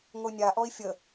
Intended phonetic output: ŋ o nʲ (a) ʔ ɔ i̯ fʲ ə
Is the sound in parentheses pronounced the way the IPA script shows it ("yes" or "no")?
yes